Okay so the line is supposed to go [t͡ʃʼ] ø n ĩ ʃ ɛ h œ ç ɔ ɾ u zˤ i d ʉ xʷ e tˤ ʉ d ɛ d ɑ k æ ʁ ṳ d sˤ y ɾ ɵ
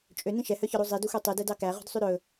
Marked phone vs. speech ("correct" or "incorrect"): correct